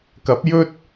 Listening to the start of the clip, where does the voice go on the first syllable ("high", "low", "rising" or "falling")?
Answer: rising